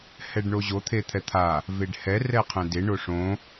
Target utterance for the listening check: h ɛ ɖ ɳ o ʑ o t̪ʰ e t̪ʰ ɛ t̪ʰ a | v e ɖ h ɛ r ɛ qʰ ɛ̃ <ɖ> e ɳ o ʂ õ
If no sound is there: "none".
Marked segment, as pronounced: d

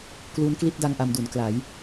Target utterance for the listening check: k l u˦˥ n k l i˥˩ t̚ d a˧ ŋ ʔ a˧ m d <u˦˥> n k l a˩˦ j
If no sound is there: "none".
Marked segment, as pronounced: u˩˦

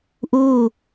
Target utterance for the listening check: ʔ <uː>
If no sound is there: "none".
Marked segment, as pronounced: uː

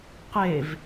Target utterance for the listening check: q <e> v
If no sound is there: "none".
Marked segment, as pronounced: e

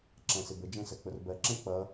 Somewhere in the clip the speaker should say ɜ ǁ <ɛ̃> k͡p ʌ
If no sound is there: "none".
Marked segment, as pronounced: ɛ̃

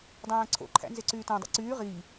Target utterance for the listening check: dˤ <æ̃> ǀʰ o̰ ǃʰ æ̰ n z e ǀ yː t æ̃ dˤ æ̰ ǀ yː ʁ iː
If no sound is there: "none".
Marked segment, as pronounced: æ̃ː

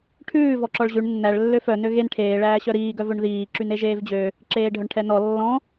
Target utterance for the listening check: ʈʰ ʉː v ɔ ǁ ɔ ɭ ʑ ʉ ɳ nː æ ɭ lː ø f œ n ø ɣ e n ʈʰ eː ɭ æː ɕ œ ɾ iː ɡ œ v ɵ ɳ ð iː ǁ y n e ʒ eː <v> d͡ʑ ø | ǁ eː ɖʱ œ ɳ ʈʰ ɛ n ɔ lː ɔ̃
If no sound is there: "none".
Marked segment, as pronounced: v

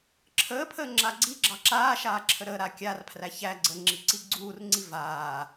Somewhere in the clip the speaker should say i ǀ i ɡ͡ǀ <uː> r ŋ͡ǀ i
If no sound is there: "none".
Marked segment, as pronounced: uː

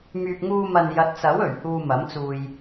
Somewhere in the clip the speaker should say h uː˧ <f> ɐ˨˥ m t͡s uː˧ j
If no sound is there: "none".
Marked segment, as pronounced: m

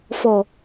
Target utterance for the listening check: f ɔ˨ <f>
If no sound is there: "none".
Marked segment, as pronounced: none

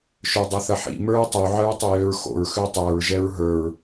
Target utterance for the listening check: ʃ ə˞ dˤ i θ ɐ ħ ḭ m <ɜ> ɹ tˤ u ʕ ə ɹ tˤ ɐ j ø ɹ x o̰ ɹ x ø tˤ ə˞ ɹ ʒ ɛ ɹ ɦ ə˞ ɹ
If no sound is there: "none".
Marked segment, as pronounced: ə˞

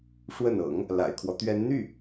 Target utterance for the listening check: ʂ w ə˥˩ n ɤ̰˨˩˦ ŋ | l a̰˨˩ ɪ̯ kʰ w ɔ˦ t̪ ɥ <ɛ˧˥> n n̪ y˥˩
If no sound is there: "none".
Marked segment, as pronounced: ɛ˧˥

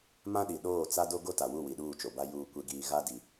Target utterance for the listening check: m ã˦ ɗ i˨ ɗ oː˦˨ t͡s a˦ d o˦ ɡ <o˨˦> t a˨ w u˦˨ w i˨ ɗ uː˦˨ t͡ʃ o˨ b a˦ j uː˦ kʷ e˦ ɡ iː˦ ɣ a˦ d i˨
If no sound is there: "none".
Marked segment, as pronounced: o˦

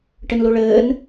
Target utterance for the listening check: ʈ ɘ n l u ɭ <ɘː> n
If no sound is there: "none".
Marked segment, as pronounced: ɘː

